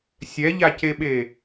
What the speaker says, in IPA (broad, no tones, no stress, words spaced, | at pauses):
sʲɛʎaceɓe